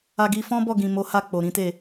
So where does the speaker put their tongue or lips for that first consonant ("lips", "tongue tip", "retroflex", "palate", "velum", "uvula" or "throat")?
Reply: velum